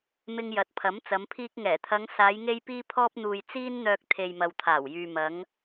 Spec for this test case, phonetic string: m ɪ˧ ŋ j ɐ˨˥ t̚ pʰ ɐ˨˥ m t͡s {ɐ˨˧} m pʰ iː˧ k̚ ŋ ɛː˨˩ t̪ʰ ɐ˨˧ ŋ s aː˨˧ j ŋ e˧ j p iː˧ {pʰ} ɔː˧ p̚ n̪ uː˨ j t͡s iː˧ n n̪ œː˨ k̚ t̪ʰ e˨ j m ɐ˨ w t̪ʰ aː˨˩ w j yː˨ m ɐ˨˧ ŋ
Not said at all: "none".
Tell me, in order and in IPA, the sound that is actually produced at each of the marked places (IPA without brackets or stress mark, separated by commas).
ɐ˨˧, pʰ